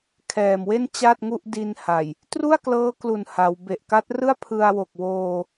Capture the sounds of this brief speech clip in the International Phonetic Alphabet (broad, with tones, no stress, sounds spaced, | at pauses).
kʰ ɛː˨˩ m w e˥˩ n t͡ɕ a˥˩ t̚ ŋ u˥˩ ʔ d i˧ n h a˨˩ j | t r u˥˩ a̯ k l ɤː˦˥ k l u˨˩ n h a˩˦ w b e˨˩ ʔ k a˦˥ t̚ r ɯ˥˩ a̯ pʰ ɯ˧ a̯ w o˨˩ k̚ w oː˧